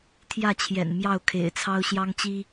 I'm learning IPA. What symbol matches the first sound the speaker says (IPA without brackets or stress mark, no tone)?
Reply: t̪ʰ